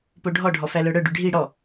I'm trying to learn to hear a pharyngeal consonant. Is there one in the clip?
no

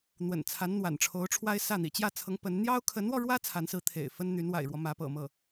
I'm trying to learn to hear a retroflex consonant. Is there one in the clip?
yes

